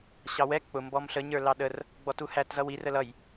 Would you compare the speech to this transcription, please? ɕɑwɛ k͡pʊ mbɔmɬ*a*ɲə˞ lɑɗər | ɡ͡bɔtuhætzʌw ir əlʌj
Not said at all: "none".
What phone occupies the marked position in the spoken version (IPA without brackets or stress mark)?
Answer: ə